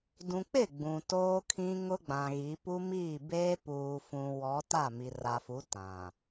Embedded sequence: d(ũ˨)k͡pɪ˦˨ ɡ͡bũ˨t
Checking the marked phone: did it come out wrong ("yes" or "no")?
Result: no